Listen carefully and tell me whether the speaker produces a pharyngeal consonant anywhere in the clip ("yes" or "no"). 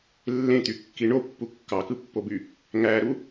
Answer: no